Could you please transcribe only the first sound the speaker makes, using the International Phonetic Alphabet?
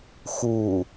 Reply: x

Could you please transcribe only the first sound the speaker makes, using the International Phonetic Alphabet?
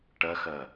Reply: ʈ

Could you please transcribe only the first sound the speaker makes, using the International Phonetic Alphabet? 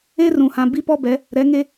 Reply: e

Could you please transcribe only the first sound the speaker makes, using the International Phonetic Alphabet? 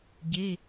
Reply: ɟ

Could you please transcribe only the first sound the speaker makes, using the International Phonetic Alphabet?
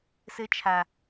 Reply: s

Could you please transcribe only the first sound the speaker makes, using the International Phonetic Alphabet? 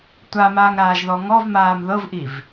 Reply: tʷ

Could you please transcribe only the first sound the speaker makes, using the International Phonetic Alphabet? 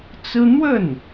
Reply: t͡s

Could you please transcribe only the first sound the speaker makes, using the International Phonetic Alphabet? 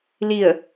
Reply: l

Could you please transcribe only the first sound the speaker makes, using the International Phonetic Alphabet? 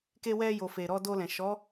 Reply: k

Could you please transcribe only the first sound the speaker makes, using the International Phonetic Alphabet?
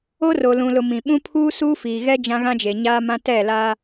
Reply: o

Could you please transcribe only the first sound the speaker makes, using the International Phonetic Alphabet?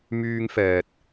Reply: m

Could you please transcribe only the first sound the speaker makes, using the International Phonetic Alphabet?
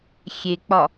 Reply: xʲ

